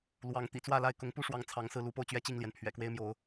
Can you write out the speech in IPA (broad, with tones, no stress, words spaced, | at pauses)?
lwɑ˨˦ŋ t̪ḭ˨˩t͡swä˥˨la˥˨ɪ̯ kʊ˨˦ŋpu˦ʂwɑ˨˦ŋ t͡sʰɑ˨˦ŋsɹ̩˧lu˨˦po˧ʊ̯ t͡ɕɥɛ˥˨t͡ɕi˥˨ŋljɛ˩n pʰɥɛ̰˨˩kwe˦ɪ̯mjo˨˦ʊ̯